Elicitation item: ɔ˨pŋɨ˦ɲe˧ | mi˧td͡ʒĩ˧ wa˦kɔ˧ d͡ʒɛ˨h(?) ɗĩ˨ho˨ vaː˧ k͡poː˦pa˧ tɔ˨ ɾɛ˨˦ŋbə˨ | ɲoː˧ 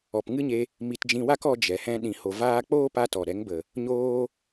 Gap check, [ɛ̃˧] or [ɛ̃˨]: ɛ̃˧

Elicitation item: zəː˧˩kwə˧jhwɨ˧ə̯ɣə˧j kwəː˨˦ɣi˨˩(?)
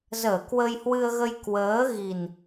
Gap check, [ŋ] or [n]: n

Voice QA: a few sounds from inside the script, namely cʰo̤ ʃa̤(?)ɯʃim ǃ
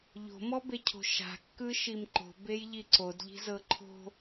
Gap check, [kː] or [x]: kː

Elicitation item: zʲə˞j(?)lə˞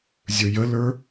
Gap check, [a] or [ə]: ə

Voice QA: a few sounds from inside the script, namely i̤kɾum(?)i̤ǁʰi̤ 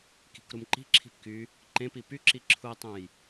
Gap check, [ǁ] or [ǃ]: ǃ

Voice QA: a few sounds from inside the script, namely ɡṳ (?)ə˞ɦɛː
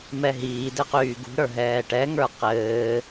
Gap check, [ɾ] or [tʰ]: ɾ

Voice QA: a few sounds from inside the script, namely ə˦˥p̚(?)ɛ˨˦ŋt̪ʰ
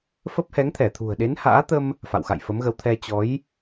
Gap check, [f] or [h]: h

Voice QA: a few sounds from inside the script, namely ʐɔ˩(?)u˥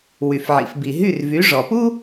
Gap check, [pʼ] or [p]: p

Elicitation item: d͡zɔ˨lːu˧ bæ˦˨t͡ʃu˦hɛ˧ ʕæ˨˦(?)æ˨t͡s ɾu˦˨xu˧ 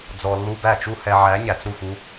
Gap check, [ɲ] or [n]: ɲ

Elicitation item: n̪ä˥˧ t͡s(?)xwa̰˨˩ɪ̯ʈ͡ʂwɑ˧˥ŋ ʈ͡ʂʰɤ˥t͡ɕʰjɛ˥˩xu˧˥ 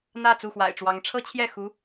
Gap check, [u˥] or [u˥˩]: u˥˩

